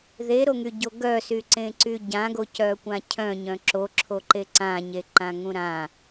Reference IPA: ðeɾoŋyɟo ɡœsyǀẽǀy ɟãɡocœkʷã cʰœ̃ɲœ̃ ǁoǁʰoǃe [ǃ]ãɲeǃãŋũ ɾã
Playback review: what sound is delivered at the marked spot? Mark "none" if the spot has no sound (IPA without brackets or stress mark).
ǀ